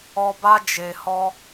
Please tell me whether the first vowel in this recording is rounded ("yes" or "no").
yes